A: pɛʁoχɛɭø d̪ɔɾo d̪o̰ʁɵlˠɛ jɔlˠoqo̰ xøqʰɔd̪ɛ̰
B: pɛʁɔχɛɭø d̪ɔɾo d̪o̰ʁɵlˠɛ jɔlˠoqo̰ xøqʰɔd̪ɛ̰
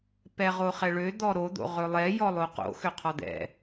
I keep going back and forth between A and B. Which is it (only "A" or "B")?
A